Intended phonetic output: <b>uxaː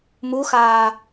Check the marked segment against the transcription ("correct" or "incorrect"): incorrect